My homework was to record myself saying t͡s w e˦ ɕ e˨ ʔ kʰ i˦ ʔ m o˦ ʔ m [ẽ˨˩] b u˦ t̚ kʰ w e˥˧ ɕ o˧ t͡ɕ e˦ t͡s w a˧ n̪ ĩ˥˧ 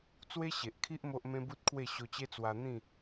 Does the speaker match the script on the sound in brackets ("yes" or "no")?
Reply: no